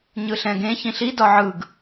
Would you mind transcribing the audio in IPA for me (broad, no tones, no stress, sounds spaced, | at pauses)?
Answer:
ɲ ɯ ɬ ɛ̃ ɡ ẽ ç ĩ ɬ i d ɒ ʕ ɯ ɡ